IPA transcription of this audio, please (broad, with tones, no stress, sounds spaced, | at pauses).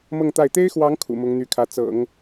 m ɤ˥˧ ŋ t̪ a˥˩ ɪ̯ t̪ e˥ ɪ̯ x w ɑ˧˥ ŋ kʰ ṵ˨˩ m ʊ˧˥ ŋ n̪ y˧˥ kʰ ä˧˥ t͡s ɤ̰˨˩˦ ŋ